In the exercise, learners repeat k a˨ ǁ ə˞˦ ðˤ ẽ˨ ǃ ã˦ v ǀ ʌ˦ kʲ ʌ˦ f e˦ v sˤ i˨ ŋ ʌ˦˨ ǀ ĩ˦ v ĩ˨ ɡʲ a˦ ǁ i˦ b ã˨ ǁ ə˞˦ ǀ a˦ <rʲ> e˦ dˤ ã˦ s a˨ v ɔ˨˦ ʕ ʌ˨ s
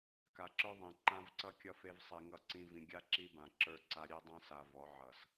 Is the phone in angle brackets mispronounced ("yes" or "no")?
yes